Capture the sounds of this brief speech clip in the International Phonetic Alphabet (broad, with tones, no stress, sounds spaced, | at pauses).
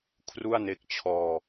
kʰ r u˥˩ a̯ n e˦˥ k̚ t͡ɕʰ ɔː˧